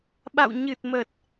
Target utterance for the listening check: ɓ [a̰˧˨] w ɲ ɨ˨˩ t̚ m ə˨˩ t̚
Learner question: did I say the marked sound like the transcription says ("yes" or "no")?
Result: yes